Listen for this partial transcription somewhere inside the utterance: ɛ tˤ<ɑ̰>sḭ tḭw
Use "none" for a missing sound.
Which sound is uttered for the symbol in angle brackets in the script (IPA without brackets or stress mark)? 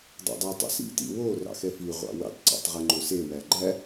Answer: ɑ̰